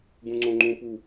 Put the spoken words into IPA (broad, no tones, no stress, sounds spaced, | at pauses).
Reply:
ɡ ũ ŋ͡ǀ õ ŋ͡ǃ ũ p u